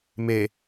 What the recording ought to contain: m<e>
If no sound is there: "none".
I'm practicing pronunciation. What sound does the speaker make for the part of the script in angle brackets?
e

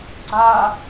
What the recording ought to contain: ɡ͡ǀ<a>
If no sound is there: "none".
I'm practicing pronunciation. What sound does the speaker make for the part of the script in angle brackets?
a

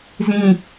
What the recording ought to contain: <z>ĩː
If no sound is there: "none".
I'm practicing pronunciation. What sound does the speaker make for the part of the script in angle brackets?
z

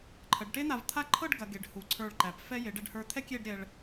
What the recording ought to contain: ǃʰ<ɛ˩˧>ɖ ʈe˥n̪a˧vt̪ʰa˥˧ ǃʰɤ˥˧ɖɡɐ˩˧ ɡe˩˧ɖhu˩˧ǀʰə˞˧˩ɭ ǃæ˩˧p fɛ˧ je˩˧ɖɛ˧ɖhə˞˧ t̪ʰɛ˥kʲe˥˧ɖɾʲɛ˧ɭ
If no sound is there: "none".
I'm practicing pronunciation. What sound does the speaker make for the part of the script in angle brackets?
ə˩˧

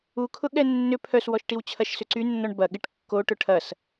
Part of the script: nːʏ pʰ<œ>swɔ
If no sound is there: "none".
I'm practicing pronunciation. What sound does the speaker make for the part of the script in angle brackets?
œ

